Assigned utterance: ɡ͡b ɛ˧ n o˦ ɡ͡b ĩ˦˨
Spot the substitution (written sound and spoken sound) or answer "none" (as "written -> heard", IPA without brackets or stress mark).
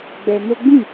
none